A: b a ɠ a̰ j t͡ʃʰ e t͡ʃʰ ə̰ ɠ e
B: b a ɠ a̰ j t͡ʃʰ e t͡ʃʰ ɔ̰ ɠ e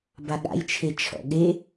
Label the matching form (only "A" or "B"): B